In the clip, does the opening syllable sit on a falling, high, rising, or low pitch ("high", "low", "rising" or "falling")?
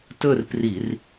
falling